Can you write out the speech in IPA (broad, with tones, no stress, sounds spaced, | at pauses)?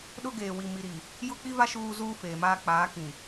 ɗ ʊ˦ ɡ eː˨ w i˨ m i˨ ɾ i˨ | j ʊ˦ k͡p i˦ v a˦ ʃ uː˦ z uː˦ f eː˨ m aː˦ k͡p aː˨˦ k ĩ˨